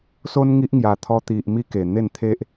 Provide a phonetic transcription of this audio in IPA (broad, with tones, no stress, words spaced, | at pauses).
so˦nŋi˦ʔŋja˨˩t̪ʰɔ˧ t̪i˨ʔ mi˦ke˨˩ n̪e˥˧nt̪ʰe˦ʔ